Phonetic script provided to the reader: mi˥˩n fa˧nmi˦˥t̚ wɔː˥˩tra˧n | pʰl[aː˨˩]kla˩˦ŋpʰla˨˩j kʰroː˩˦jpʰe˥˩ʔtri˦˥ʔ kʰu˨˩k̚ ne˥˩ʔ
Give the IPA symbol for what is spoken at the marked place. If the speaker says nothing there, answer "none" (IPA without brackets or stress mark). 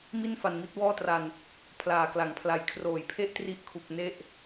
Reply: aː˨˩